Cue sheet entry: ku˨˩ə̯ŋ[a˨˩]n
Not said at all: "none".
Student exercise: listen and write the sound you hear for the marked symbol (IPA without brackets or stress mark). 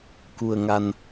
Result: a˨˩